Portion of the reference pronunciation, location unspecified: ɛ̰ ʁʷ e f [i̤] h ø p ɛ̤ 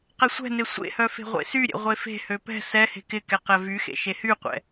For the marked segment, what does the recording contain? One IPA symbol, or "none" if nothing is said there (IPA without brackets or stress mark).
e̤